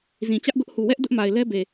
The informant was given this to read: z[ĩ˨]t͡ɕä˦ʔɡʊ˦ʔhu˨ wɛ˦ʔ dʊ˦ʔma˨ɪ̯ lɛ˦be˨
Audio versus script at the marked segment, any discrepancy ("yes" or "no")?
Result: no